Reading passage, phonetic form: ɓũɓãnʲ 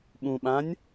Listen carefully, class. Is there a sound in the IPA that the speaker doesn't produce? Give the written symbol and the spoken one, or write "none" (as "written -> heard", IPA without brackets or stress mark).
none